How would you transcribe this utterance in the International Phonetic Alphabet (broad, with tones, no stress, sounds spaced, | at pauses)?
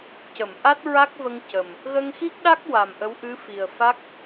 c ə˨˩˨ m ʔ a˦˥ t̚ ɹ a˦˥ k̚ v ə˧ ŋ c ə˨˩ m | ɣ ə˧ ŋ x i˦˥ k̚ ɗ a˦˥ k̚ w a˨˩ m ʔ ə˧˥ w ʔ ɨ˧˥ f i˨˩ ə̯ f a˦˥ k̚